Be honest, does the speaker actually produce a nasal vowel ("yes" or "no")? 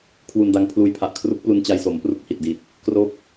no